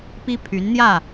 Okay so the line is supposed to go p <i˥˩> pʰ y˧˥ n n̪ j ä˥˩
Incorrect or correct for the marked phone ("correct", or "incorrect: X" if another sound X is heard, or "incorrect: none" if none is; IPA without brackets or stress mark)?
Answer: incorrect: i˥